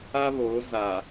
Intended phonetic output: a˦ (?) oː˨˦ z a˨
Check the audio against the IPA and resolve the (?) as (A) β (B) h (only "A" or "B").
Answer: A